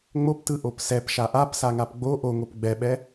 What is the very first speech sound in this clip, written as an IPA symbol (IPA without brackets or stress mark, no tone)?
ŋ͡m